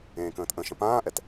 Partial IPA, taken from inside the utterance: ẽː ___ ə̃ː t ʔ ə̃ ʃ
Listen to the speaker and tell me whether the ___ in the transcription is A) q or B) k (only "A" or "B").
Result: B